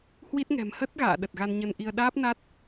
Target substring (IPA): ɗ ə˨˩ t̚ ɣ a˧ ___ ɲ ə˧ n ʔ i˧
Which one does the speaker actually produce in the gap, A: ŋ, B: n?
B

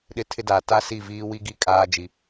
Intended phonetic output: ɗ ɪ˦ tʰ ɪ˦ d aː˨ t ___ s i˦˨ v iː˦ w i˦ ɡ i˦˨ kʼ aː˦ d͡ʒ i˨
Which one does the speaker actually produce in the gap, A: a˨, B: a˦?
B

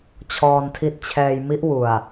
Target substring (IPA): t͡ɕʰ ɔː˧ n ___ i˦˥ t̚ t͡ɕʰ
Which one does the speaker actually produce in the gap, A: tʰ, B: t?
A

